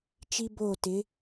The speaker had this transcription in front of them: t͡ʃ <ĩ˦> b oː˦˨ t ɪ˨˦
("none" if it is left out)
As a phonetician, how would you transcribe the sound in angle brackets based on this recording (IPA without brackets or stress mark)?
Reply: i˦